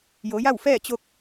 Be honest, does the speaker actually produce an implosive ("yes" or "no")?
no